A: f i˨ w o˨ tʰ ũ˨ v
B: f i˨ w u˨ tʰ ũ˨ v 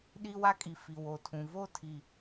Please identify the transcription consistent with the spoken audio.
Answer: A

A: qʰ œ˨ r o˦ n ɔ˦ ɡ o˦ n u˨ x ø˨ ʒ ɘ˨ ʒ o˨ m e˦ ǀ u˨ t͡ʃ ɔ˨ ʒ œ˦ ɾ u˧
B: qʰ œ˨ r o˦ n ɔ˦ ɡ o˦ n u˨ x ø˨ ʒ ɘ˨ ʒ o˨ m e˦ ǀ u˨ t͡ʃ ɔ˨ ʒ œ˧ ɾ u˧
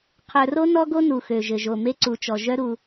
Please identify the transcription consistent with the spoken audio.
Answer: A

